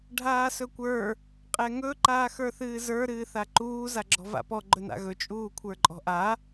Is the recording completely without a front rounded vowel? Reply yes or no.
yes